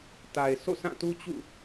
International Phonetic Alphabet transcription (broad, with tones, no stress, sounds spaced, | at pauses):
t a˨ ɪ̯ s o̰˦˨ s ã˦˨ t u˦ t͡ɕ ṵ˦˨